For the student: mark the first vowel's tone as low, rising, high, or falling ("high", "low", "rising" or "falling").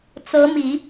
rising